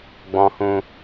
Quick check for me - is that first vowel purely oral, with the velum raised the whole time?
no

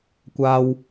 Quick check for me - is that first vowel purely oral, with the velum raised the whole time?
yes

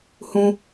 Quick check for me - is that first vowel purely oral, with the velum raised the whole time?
no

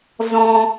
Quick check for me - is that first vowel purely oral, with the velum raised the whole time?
no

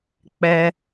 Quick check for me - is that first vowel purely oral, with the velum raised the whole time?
yes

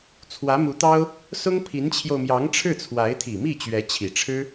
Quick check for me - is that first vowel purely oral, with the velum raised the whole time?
yes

